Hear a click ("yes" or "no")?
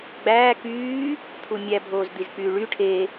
no